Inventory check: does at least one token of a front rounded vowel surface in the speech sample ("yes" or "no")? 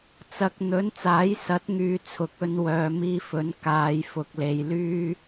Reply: yes